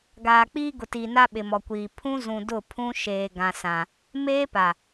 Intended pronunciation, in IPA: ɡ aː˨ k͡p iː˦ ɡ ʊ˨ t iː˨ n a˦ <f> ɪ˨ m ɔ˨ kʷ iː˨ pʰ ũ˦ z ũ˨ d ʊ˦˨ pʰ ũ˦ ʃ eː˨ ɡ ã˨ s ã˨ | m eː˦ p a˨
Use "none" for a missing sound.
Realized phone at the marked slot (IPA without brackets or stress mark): ɓ